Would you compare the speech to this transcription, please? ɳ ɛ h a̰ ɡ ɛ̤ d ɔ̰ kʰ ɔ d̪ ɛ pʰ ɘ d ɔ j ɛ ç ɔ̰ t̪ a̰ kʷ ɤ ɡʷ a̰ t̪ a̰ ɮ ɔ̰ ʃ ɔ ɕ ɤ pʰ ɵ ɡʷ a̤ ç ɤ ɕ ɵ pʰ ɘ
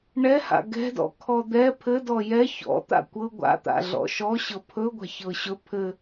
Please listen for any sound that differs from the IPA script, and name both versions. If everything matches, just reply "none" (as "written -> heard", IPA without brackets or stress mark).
none